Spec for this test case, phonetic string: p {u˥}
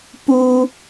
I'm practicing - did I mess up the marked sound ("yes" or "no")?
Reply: no